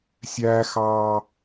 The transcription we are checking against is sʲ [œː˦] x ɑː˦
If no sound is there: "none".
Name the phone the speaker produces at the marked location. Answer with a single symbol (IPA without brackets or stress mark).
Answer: æː˦